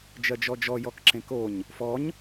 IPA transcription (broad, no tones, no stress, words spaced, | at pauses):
d͡ʒɜd͡ʒɔd͡ʒɔ jɔkǁẽkoɲ | fɔɲ